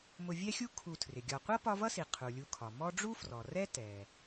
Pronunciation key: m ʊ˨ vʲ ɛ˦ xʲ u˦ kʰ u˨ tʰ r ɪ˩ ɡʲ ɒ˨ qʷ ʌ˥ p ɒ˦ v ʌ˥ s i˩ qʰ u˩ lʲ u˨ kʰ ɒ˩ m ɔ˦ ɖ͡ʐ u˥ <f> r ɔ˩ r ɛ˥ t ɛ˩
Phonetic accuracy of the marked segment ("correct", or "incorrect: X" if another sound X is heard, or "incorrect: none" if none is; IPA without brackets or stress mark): correct